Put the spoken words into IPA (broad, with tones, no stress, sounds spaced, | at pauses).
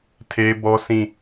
tʰ e˦ b ɔ˦ sʰ ĩ˦˨